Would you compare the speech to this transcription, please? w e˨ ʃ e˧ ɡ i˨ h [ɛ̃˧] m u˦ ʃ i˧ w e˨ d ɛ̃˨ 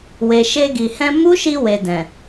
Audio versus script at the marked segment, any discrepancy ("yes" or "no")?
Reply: no